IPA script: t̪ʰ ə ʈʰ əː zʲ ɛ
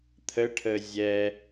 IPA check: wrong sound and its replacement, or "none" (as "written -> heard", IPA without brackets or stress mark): none